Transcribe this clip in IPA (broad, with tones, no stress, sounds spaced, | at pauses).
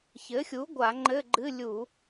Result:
ç ɘ˩˥ xʲ u˩˥ ɡʷ a˧˩˧ ŋ͡ǃ ɘ˧˥˧ ɡ͡ǃ ɨ˧˥˧ lʲ u˧˩˧